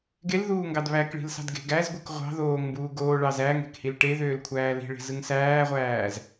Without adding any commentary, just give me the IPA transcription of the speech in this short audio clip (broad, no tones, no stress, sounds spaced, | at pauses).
ɡ e l ð uː ŋ ɡ ɑ d β æ k ɭ i̤ l s ɑ̤ d ɡ e̤ ɡ æ z ɡʷ ɯ k ʁʷ ɑ̤ ð oː ŋ m b uː ɡ oː ɭ ɑ z æ ŋ e̤ k h i l ʈ e ð øː l kʷʰ æː l i̤ ɭ e̤ z ɯ ŋ s æː ʁʷ æː z